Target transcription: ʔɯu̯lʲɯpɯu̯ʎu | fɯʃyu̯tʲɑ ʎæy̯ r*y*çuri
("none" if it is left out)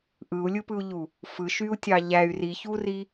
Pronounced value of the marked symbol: i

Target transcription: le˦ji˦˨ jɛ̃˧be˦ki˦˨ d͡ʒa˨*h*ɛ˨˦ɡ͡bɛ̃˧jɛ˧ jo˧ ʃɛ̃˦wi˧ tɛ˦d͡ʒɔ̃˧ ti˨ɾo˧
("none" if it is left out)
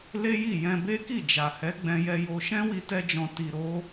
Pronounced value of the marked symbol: h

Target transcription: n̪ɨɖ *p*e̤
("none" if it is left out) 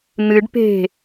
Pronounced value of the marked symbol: p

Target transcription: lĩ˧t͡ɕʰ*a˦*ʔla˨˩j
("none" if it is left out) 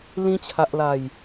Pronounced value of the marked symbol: a˨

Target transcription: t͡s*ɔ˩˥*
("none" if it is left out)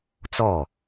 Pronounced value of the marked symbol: ɔ˥˩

